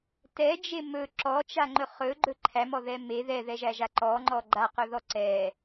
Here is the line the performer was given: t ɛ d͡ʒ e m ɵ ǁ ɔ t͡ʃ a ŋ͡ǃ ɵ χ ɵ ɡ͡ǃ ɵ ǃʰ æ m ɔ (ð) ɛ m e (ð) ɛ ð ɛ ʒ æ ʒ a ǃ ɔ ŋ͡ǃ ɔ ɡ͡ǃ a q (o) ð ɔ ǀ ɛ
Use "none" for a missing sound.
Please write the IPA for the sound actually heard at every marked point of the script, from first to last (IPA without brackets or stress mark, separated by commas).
ð, ð, ɵ